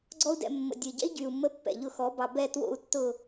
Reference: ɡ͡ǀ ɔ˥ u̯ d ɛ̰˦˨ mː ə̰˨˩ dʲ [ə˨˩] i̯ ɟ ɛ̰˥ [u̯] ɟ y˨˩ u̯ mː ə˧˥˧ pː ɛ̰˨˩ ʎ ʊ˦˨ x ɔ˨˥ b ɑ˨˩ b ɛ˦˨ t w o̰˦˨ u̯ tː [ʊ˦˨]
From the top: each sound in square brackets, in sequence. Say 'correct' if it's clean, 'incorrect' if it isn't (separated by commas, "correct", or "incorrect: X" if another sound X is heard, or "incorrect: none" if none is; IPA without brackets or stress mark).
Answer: correct, incorrect: i̯, correct